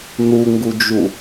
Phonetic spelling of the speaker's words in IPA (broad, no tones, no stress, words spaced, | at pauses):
nuŋɡud͡ʒu